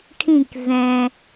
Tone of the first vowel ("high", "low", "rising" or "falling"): falling